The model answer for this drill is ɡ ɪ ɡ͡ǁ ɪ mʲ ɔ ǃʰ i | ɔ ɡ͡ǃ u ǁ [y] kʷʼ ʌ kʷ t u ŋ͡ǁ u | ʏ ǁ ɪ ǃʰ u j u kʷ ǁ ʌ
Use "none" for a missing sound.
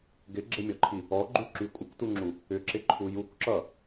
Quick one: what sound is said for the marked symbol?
y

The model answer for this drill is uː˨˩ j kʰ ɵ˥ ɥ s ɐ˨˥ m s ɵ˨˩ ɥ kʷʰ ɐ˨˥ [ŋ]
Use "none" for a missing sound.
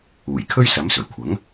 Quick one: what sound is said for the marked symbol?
ŋ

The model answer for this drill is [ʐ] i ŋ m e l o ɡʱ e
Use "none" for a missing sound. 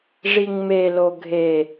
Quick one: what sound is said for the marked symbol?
ʐ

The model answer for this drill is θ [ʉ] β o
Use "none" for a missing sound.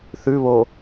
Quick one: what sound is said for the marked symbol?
ʉ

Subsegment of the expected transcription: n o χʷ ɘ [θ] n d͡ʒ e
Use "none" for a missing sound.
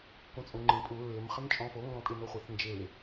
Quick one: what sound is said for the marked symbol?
θ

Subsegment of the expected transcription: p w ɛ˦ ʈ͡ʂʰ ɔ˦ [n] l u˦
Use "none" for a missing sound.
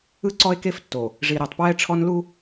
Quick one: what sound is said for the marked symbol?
n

